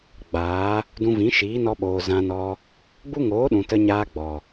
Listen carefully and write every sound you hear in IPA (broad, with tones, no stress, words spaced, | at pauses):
ɡ͡baː˨˦ | dũ˧vĩ˨˦ ʃiː˨˦nɔ˧ɓoː˨ zã˧nɔ˧ | ɡ͡bu˦ŋoː˨˦ɗũ˨ tə˧ɲaː˧ ɡ͡bɔ˨